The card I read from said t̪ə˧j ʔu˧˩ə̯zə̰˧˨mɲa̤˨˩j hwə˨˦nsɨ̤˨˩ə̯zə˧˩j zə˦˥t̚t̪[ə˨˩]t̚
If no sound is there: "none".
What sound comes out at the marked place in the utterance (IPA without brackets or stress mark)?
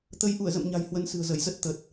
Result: ə˨˩